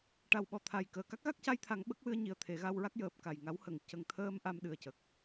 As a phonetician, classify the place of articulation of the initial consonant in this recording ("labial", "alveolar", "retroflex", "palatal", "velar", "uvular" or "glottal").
retroflex